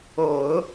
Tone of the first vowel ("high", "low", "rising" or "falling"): low